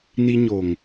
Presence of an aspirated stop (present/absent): absent